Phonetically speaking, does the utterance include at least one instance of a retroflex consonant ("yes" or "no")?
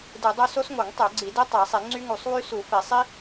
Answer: no